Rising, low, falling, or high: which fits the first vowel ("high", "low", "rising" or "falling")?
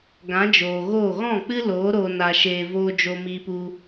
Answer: rising